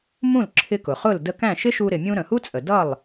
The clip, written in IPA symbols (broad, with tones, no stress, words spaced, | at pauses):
mũ˥˩lǁʰɪ˧kʊ˩ χʊ˥˩l də˧kæ̃˥˩ʃɪ˥ʃu˧ ɾɪ˩mʲũ˧ ɾə̃˩hu˥t͡sʼə˩ dʌ˥˩lˠ